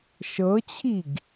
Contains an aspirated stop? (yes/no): yes